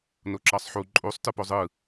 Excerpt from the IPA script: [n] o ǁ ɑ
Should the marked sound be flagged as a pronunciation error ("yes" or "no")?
no